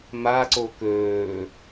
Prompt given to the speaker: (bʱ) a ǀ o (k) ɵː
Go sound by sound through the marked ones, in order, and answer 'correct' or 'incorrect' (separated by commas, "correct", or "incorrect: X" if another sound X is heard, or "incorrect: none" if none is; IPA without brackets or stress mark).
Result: incorrect: m, correct